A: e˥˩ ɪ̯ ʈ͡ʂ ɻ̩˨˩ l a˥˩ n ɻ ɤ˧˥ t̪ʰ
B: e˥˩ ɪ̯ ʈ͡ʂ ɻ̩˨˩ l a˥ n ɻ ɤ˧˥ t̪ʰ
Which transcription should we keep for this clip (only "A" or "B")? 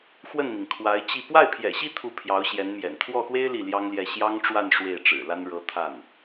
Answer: B